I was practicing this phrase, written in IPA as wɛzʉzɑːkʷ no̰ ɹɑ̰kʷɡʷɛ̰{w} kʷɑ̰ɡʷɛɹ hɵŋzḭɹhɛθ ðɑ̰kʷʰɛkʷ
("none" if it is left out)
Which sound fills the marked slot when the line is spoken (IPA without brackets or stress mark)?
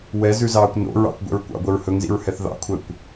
ɹ